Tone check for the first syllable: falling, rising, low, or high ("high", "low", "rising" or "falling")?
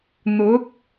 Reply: rising